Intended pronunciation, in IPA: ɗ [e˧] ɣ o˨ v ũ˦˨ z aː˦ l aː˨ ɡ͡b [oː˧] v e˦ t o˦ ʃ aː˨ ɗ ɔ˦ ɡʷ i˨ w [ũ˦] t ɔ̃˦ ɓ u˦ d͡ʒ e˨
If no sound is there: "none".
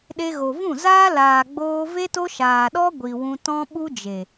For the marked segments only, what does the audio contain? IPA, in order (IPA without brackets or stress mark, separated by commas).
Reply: e˧, oː˧, ũ˧